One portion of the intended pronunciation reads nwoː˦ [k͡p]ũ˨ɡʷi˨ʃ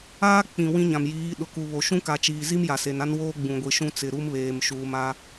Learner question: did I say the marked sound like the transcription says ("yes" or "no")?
no